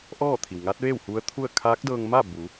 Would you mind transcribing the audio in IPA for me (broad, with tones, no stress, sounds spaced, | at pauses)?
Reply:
ʔ ɔː˥˨ t̪ʰ i˩ w ŋ a˧˥ t̚ ʋ eː˥˨ w h u˧˥ ə̯ t̪ʰ u˥˨ ə̯ kʰ aː˧˥ k̚ d ɤː˧ ŋ m a˥˨ b u˩˧